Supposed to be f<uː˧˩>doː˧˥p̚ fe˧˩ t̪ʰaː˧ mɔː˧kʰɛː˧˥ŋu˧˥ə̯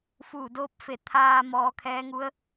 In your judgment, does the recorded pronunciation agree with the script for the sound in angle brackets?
yes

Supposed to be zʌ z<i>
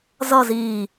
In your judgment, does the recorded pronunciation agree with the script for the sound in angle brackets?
no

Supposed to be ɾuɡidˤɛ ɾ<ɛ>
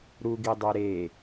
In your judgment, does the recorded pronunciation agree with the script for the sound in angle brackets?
no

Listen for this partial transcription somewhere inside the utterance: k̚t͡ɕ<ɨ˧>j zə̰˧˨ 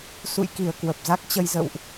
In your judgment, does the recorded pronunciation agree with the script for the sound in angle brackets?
no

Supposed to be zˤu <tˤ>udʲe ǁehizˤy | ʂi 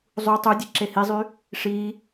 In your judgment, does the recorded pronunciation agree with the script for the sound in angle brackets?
yes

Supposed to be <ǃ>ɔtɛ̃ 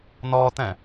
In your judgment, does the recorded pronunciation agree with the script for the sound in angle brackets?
no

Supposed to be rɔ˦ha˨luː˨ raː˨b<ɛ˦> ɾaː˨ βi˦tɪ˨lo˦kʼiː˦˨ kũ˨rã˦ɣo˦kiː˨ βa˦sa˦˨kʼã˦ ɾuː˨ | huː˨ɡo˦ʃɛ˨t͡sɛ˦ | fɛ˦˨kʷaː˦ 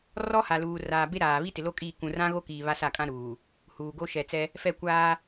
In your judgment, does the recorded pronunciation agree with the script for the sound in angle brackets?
no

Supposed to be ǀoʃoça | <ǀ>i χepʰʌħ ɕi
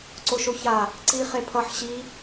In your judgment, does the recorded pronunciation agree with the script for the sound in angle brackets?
yes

